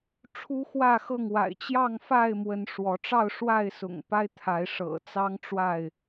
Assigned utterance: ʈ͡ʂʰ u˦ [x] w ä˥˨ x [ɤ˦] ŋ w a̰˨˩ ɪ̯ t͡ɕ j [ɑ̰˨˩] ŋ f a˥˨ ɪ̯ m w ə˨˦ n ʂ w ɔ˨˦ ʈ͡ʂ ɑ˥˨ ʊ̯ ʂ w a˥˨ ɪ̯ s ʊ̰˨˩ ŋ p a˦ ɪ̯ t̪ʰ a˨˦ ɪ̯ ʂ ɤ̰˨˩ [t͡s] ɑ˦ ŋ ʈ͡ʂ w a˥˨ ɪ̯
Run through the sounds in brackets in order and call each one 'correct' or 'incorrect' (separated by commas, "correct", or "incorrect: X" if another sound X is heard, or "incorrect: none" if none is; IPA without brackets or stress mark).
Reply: correct, incorrect: ɤ˥˨, incorrect: ɑ˥˨, correct